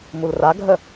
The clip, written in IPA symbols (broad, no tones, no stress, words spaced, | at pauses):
mulraɡʱə